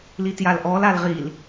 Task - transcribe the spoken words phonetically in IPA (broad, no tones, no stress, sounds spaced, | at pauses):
l i t j a l ʔ ɔ l a l ʁ i l